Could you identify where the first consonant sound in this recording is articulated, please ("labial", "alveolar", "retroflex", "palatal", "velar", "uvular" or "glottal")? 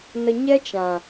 alveolar